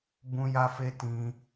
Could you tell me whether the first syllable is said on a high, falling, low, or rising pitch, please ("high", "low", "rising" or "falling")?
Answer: high